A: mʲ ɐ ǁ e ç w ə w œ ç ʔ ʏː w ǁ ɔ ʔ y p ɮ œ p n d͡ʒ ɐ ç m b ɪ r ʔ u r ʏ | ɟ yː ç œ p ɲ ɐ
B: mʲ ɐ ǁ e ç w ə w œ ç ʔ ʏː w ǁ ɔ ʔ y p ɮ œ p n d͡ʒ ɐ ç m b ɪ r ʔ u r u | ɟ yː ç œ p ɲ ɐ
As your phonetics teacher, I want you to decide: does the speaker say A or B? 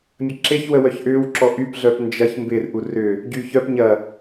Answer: A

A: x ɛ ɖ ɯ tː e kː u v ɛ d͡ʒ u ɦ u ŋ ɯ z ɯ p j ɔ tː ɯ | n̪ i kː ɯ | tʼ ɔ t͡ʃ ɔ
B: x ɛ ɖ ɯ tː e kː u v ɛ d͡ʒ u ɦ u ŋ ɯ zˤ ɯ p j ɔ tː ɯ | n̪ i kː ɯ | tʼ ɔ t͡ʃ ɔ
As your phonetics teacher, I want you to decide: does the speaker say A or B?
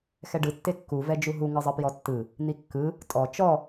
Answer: B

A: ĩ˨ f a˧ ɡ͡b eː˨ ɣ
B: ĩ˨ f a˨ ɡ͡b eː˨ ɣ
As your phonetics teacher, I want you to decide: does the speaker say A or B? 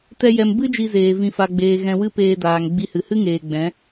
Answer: B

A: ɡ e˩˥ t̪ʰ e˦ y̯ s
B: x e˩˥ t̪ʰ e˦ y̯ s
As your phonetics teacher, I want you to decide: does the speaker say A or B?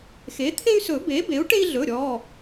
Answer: B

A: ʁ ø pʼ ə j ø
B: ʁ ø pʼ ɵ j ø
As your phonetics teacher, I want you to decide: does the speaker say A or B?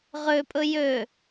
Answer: B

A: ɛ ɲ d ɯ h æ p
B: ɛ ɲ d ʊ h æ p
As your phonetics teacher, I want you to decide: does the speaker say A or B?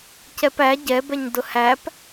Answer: B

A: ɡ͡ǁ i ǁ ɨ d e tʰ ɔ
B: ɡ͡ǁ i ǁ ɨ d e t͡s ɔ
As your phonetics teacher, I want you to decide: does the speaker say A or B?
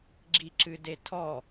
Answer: A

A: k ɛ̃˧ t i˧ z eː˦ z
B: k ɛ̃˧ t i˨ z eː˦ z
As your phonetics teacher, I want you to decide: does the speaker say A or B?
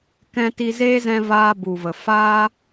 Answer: A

